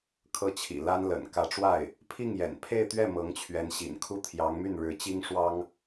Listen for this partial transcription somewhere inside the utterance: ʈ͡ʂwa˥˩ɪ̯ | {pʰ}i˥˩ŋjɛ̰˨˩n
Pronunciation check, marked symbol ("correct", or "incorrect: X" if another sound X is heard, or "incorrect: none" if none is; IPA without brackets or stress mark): correct